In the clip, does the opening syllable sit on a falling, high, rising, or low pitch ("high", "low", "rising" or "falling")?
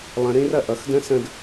rising